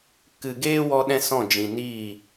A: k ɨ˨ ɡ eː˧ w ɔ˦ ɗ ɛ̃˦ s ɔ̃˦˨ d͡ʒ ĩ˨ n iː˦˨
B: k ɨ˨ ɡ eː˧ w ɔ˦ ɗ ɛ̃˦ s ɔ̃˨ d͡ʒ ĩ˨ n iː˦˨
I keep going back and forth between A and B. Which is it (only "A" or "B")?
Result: A